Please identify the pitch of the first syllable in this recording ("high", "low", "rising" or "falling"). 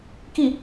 falling